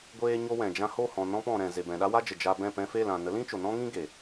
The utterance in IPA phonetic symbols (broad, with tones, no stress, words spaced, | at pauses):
ɡʷeː˦ɲo˦wɛ̃˨d͡ʒã˦ ho˦˨hɔ̃˨ nɔ̃˧p ɔ̃˨ɾɛ̃˨ ze˨bɛ̃˨ ɗa˦wa˦d͡ʒə˨ d͡ʒa˧bɛ̃˦˨ pɛ̃˧fe˦˨l ã˨ nə˨˦lĩ˦ t͡ʃo˨nɔ̃˦ŋĩ˦ ɡe˨